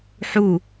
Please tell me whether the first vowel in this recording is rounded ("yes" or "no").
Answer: yes